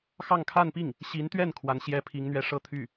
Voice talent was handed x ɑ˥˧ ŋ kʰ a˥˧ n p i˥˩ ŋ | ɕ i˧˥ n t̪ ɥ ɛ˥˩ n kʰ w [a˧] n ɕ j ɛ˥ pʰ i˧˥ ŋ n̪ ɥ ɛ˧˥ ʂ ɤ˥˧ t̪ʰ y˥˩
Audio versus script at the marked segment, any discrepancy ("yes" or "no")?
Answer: yes